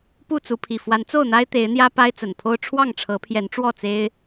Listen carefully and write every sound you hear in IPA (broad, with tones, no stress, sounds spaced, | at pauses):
p u˥˨ t͡s u˨˦ pʰ i˨˩ f w a˨˦ n t͡s o˥˨ ʊ̯ n̪ a˦ ɪ̯ t̪ e˨˦ ɪ̯ n̪ j ä˦ p a˦ ɪ̯ t͡s ə˨˩ n pʰ o˦ ʊ̯ ʈ͡ʂʰ w ɑ˥˨ ŋ ʈ͡ʂʰ ɤ˨˦ pʰ j ɛ˨˦ n ʈ͡ʂ w ɔ˥˨ t͡s e˦ ɪ̯